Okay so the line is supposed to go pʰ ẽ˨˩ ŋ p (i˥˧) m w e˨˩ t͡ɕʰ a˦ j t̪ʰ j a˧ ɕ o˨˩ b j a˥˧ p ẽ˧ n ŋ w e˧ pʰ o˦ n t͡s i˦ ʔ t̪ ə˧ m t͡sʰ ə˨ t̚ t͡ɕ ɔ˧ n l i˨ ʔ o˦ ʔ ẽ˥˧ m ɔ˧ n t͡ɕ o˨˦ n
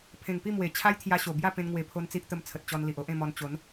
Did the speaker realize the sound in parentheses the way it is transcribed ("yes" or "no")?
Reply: yes